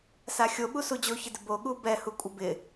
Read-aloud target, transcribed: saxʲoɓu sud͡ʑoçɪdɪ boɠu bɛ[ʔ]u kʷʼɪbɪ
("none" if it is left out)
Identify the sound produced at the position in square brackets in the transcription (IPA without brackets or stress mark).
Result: h